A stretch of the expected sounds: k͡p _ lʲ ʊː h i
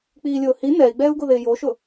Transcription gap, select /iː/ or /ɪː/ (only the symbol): iː